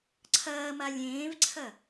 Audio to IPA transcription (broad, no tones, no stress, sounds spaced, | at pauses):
ǀʰ ɐː m a lʲ ẽː v ǀʰ ɐ